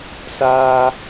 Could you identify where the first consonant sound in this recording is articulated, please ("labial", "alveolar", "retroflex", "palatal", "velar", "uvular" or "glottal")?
alveolar